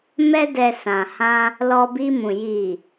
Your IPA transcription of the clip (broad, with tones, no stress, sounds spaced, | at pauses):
m ɛ˧ d ɛ˨ s ã˨ h ã˧ | l ɔ˧ b i˧ m ũ˨ j i˨